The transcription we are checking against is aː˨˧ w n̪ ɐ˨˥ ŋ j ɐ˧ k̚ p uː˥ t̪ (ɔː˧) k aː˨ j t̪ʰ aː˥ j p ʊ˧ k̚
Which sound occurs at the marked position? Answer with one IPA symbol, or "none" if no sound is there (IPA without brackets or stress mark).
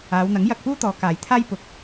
ɔː˨˧